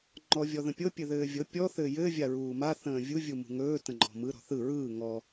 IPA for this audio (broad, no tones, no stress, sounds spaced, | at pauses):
ŋ͡ǃ ɔ vʲ ɔ ð ə̃ pʲ ɤ pʲ ɘ ð ɘː vʲ ɤ pʲ ɔ θ ɘː j ɘː vʲ a ɹ uː m a θ ə̃ː vʲ u vʲ u m ṳ ŋ ɵː t ə̃ ŋ͡ǃ ɔ̤ m ɯ ɾ ɔ̤ θ ɯ ɹ ɯː ŋ ɔ